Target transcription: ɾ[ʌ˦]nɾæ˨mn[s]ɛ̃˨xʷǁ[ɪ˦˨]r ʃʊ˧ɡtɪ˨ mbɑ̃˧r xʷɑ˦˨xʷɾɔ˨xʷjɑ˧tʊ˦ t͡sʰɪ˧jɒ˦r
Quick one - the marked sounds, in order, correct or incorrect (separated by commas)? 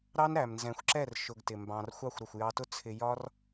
incorrect, incorrect, incorrect